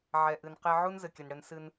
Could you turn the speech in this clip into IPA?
ʕɛ˨ʔɨ˨nqe˧ ʕu˦nzɘ˨kʲɘ˨nɽɘ˧n sɨ˧n

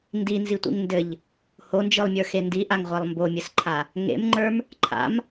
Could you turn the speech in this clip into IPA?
ndinzitʷḭŋ ndɘʎ | hond͡ʒɯlˠmʲə˞xe ndiʔaŋʁʷalˠ mbomʲɘsǃʰa | ŋḛmŋ͡ǃə˞m | ǃʰa̰m

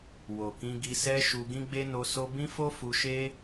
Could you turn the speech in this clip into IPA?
wo˨kĩ˧ ɡi˧sɛ˦ʃu˧ ɡĩ˦ɡ͡be˦no˧so˦ bĩ˦fo˦ fu˧ʃe˦

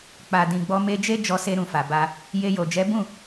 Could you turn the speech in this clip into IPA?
k͡pa˨dĩ˨ɡ͡bɔ˧ me˧d͡ʒe˦ d͡ʒɔ˧se˧ ɾũ˨fa˨ ba˧ | je˧jo˨ d͡ʒɛ˨˦bũ˦˨

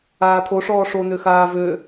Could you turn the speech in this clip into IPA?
aːt̪ʰoʂɔː ʂon̪øxaː vø

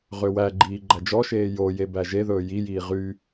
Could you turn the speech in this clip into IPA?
ʁøwæɡ͡ǃiː ɡ͡ǃæd͡ʒɔʃeː joje bæʒeðɵː jijiː ʁy

